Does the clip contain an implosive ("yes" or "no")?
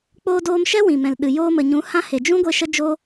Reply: yes